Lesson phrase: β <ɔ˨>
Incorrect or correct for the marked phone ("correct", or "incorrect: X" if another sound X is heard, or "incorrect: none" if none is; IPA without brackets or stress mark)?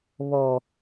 correct